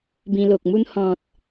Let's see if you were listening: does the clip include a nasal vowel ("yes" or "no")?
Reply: yes